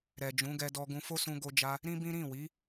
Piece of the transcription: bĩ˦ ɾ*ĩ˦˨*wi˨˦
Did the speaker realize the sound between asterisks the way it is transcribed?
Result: yes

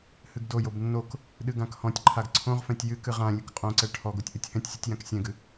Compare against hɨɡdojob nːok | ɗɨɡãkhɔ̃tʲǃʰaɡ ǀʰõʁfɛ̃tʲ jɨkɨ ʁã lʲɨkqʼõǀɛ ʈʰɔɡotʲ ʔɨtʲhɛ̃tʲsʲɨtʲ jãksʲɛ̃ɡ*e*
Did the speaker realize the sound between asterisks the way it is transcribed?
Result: no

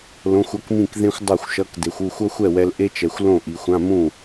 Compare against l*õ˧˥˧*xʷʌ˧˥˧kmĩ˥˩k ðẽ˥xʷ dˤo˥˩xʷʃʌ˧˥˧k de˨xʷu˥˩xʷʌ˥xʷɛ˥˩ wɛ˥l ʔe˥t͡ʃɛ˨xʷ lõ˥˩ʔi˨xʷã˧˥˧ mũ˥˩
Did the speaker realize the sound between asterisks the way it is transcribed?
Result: yes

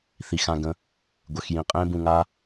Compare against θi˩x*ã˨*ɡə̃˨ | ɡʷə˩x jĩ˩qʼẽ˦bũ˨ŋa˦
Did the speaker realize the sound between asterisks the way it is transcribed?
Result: yes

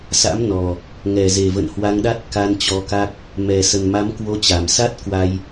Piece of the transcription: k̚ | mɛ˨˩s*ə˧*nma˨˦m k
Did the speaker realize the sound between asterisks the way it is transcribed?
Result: no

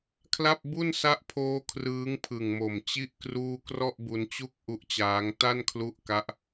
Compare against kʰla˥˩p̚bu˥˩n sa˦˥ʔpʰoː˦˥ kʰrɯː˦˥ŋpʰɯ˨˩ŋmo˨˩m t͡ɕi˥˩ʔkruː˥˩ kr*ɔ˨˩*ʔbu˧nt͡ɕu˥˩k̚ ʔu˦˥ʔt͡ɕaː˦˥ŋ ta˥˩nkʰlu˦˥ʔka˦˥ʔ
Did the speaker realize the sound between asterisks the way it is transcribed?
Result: no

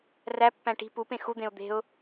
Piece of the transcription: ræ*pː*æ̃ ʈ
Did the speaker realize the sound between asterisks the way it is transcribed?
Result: yes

